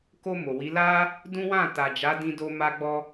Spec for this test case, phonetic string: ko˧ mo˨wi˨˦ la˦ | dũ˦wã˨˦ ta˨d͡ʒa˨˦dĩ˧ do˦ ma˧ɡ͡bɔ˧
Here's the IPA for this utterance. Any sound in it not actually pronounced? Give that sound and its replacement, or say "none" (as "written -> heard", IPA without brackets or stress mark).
ã˨˦ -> ã˦˨